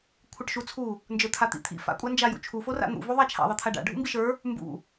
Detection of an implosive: absent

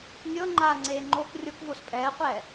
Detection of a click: present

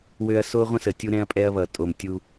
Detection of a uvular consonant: present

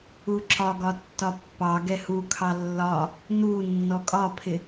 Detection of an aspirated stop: present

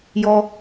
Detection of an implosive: absent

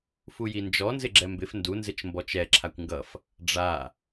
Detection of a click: present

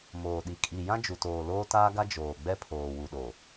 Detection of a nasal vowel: present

